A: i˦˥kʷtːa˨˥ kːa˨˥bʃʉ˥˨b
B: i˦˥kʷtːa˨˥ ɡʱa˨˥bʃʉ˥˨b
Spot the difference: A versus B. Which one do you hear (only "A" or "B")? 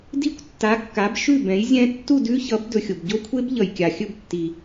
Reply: A